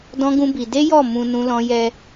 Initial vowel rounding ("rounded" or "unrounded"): rounded